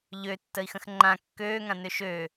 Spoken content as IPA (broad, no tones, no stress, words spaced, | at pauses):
ʎø tːəi̯xə̃xŋ͡ǃã kːøːŋã nøʃø